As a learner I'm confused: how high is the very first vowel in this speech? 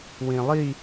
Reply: high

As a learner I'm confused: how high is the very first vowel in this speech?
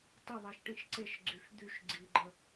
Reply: mid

